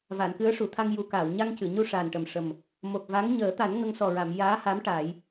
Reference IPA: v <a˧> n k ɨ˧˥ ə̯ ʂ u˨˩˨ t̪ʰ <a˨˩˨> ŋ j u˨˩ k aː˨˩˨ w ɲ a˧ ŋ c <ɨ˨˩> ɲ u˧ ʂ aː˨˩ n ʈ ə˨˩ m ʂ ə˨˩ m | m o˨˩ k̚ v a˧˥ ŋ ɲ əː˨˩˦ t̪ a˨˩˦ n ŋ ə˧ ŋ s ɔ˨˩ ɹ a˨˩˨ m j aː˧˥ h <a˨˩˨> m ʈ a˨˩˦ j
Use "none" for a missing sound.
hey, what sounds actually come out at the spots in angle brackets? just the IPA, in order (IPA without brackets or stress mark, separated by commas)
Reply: a˨˩˨, a˧, ɨ˨˩˨, a˧˥